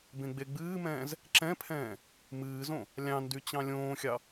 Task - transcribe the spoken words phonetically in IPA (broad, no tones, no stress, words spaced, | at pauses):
bẽɡ͡beɡ͡bɨːmɛ̃ːz | ǁɛ̃pʰɛ̃ː | mɨːzõ | lʲɑ̃ ndyt͡ɕɑ̃lʲõːxʲɑ